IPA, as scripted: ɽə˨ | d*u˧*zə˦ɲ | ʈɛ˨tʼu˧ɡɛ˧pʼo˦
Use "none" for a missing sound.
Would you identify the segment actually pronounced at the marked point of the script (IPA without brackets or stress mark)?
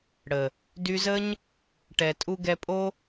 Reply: y˧